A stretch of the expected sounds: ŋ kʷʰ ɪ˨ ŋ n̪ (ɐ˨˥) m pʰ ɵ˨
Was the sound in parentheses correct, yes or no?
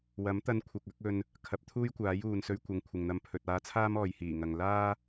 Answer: no